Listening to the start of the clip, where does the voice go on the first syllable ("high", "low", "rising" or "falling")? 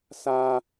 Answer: high